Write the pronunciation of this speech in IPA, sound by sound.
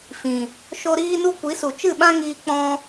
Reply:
fĩ˨ | ʃo˦ ɾiː˦nu˦ kʷi˨˦su˨t͡ʃɨ˦˨ɓã˦ ŋiː˧k͡pɔ̃˧

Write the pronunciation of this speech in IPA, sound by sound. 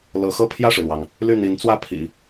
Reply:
lɤ˧˥xɤ˥˧ pʰjä˥˩ʂɻ̩˩lwɑ˩ŋ | ly˥˩n̪i˧˥nt͡swä˥˩pʰḭ˨˩˦

